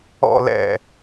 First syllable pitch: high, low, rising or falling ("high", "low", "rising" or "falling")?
falling